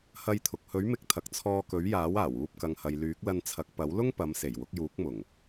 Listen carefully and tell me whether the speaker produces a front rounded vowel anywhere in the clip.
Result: yes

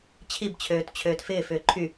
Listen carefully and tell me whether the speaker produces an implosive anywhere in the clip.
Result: no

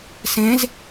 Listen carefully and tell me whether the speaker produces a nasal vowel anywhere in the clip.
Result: yes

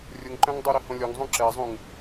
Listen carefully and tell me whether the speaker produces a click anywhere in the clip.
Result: yes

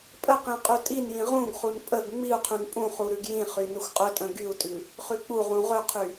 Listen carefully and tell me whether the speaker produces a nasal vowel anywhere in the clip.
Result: yes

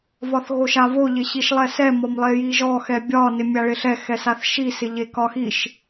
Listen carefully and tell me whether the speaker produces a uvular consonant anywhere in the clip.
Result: no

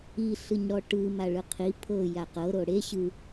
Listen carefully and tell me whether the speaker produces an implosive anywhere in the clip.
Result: no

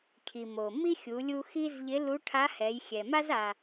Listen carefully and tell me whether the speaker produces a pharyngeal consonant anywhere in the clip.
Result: no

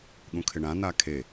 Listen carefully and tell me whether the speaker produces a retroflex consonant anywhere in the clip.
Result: yes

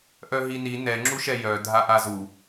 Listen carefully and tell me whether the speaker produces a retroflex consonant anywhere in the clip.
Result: no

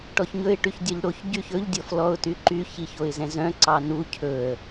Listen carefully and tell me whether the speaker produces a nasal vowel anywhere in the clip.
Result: yes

